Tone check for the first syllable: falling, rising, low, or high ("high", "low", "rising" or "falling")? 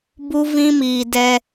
high